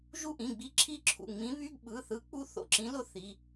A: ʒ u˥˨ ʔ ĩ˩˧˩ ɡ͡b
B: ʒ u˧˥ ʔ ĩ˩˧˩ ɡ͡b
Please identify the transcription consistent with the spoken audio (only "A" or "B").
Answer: A